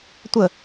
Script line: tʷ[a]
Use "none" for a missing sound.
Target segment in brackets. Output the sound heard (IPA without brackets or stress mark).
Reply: ə